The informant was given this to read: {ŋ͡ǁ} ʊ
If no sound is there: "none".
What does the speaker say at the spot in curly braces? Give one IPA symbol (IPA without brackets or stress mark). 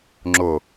ŋ͡ǁ